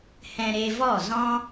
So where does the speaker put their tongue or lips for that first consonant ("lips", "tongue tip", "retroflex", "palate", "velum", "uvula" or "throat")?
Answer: throat